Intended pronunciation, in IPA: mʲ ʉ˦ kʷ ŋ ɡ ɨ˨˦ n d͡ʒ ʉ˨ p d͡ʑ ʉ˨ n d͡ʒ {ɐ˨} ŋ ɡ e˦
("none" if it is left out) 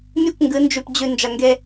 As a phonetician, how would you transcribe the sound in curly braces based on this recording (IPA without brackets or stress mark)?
ɐ˨